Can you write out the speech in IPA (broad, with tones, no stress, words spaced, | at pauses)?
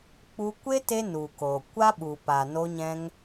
k͡pu˧kʷe˦ te˦ nu˨ko˨ kʷa˦ɓu˨pa˨ no˧ɲɛ̃˧ŋ